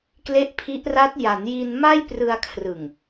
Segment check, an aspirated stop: present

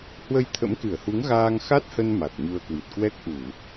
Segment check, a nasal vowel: absent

